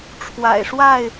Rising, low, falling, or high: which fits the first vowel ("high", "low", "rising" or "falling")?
low